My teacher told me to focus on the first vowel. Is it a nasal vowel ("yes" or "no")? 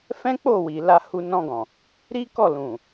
yes